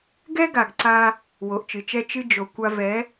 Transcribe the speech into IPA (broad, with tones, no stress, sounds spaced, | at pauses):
ɡ ɛ˦ ɡ a˨ ɡ ǀ a˧ | w o˨ ʔ t͡ʃ ɨ˨ t͡ʃ ɛ˦ t͡ʃ ɨ˦ d͡ʒ o˨ kʷ a˧ v ɛ˨˦